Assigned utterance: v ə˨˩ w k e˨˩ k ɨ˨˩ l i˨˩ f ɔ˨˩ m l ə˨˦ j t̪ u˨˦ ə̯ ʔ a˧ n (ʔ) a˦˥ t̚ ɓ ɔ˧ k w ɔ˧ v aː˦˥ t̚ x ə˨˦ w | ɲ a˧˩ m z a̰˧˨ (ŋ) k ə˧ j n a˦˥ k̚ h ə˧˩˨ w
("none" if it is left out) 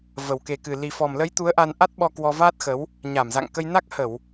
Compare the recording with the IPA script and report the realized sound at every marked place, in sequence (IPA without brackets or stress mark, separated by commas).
ʔ, ŋ